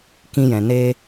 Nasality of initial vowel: nasal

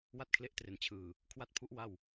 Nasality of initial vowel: oral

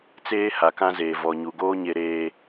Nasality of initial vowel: oral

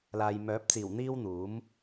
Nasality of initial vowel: oral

